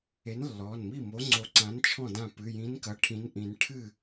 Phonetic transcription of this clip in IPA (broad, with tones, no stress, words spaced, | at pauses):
e˨˥nlːɔ˩˧˩nmi˥˩mo˨˥ ŋ͡ǀo˨˥ǀã˨˥nt͡ʃʰɔ̃˥˩ dã˥˩ pɨ˩˧˩jĩ˨˥nkɐ˩˧˩ ʈʰĩ˨˥nʔĩ˨˩˦n ʈʰɨ˥˩